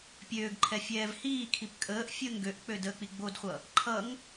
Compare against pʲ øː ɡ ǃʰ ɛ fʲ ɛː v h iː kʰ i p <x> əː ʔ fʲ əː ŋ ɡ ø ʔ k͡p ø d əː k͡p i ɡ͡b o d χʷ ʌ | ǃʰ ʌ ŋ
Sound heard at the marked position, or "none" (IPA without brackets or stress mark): kʼ